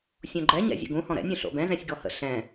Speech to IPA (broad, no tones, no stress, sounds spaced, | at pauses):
sʲ õ ɡ͡ǃ ɛ ɲ ɛ̰ zʲ ə̰ ɡ ũ h ɔ̃ ɾ ɛ̰ nʲ õ ɬ o̰ b ɛ̃ z ɛ̃ sʲ ɡ ɔ h ə̰ ɬ ɛ̃